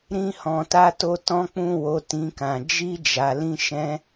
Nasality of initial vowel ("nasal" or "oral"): nasal